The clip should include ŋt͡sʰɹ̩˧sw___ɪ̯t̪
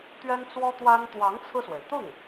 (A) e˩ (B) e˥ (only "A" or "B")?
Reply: A